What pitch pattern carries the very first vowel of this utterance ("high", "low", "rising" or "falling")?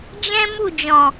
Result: high